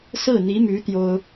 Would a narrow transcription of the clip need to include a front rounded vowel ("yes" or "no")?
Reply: yes